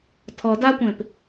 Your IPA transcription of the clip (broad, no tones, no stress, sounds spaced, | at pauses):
tʰ ɔ d a kʷ ẽ p